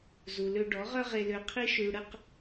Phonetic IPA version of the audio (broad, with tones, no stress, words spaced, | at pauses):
zu˨lø˧ ɖɔ˨˦ʁœ˦ ʁe˧lø˧qʰi˦ ʃy˨ ɽə˦q